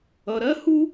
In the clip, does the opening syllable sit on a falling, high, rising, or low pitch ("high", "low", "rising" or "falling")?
low